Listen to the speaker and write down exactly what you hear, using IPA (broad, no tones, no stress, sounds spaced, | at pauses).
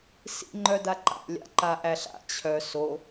s ḭ ŋ͡ǃ œ d a ǃ a̰ lʲ a̰ ǃ a ʔ æ ɬ a̰ t͡ɕʰ œ s o